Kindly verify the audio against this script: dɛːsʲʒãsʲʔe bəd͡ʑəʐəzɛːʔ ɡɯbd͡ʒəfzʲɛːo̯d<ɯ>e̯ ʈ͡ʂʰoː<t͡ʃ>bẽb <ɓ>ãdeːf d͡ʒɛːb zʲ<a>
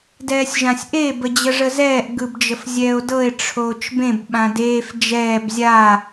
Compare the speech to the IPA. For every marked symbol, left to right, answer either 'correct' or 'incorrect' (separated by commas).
incorrect, correct, correct, correct